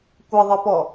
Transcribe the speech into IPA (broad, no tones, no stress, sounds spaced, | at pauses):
kʷ ʌ ðˤ ə p ɔ